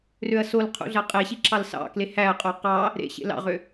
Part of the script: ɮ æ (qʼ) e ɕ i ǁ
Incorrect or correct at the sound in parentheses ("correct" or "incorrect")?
correct